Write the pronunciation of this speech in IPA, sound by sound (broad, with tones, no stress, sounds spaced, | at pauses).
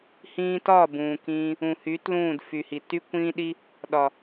h ĩː˧ t ɒ˦˨ b ũː˨ k ĩː˧ | ũ˨ h y˨˦ t l ũː˦˨ d f y˨ h i˨ t y˦ kʷ ĩː˦ ɗ i˦ | ɗ ɒ˨